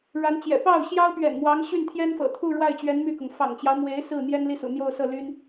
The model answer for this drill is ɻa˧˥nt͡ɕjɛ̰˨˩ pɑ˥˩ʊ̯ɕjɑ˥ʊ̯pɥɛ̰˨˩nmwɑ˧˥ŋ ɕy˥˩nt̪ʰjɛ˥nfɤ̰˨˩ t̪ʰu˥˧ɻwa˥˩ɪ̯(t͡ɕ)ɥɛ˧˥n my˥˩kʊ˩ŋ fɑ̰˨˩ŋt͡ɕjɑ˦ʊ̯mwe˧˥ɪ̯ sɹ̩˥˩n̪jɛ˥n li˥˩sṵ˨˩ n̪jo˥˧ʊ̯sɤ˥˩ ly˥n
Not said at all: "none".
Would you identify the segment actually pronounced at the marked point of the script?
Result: t͡ɕ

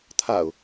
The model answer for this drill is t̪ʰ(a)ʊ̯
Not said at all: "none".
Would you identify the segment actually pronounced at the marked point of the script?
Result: a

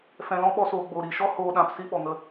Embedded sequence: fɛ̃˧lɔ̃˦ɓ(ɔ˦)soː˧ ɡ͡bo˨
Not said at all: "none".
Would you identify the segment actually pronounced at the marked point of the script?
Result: ɔ˦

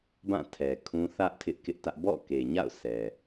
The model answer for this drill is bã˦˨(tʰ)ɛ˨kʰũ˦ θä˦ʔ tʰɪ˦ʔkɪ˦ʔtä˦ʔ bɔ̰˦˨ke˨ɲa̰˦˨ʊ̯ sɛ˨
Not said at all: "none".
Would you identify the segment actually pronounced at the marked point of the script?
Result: tʰ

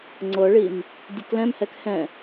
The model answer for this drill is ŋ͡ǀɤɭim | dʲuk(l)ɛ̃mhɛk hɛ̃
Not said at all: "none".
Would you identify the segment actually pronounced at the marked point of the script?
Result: l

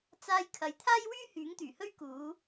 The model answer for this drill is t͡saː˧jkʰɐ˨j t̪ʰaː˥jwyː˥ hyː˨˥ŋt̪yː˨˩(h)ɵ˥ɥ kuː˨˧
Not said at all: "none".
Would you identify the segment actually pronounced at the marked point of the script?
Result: h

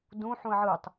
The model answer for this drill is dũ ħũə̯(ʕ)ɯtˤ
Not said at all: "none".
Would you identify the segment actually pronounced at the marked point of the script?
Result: ʕ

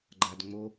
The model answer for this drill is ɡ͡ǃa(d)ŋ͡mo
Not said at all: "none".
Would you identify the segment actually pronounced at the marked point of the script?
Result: d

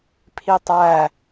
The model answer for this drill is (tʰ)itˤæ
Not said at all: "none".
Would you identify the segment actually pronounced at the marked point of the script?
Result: pʰ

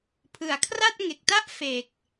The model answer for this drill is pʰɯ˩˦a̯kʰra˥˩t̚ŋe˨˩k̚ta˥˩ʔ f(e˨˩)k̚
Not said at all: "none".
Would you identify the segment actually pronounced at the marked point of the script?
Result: e˨˩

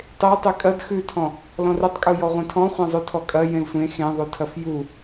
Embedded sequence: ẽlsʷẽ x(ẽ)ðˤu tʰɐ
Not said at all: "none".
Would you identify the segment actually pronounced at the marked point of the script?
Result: ẽ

